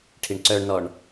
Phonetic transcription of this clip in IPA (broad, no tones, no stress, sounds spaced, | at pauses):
ʈʰ i ɳ ǀ œ ɳ n ɔ ɳ